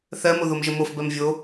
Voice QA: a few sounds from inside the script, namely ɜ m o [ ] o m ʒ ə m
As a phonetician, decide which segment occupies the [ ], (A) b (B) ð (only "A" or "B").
B